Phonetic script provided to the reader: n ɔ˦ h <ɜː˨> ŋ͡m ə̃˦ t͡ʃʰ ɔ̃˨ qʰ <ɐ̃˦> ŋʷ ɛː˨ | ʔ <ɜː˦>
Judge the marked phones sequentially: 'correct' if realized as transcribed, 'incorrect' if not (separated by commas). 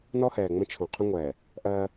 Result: incorrect, incorrect, correct